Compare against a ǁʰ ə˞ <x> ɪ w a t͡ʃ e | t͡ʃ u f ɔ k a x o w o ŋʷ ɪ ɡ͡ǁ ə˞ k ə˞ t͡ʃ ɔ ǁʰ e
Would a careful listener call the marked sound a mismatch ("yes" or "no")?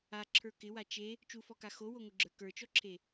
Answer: yes